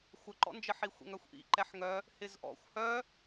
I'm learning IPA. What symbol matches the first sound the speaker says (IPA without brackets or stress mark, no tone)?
xʷ